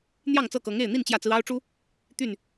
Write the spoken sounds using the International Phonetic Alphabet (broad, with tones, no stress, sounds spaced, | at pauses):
n̪ j ɑ˥˨ ŋ t͡s ɤ˥˨ k ɤ˨˦ ŋ e˥˨ ɪ̯ n̪ i˥˨ n t͡ɕ j ä˥˨ t͡s ɹ̩˦ ɑ˦ ʊ̯ ʈ͡ʂ u˦ | t̪ y˥˨ n